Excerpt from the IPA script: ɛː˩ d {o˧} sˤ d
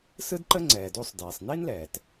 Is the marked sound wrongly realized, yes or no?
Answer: no